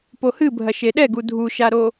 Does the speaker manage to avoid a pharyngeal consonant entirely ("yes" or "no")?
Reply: yes